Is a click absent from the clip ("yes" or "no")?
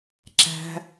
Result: no